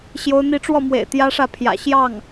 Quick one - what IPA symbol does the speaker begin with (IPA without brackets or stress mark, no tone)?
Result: ɕ